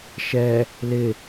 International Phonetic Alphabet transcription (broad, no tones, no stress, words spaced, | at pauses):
ʃɛ | lɪ